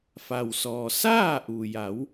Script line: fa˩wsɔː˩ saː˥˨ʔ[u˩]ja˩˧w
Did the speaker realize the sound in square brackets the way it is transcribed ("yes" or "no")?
yes